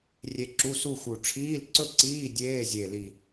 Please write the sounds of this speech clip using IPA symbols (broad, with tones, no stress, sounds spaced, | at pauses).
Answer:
rʲ e˧ ǁ u˧˥˧ s u˥˧ x u˨˩ ʈ͡ʂʰ iː˧˥˧ l ǀ ɵ˥˧ ǀ iː˧˥˧ dʲ eː˧˥˧ zʲ e˨˩ l i˨˩